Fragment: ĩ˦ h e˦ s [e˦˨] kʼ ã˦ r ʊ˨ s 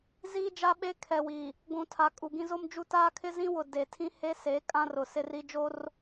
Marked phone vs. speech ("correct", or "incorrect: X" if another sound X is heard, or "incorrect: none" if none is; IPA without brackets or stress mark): incorrect: e˨˦